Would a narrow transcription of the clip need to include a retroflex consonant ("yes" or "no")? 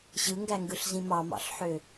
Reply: no